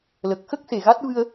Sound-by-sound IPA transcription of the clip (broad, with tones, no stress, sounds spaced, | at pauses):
l ə˨˩ k̚ x ə˦˥ k̚ s e˨˩ ɣ a˦˥ t̚ v ɨ˧ ə̯